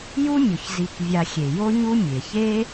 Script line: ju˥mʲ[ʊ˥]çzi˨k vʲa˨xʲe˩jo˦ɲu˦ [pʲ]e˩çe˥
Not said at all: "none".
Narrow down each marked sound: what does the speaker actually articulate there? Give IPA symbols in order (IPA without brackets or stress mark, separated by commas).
ʊ˩, mʲ